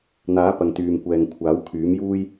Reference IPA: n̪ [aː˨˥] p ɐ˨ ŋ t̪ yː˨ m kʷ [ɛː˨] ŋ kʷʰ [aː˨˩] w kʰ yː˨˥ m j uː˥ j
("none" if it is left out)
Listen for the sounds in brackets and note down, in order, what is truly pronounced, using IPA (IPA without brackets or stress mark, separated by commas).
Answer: aː˨˥, ɛː˨, aː˨˥